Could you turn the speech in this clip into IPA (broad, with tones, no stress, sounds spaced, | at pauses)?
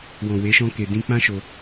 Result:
w ɔ̃˨ w e˨˦ ʃ ɔ̃˦ k e˧ d ĩ˦ k͡p ã˦ ʃ o˧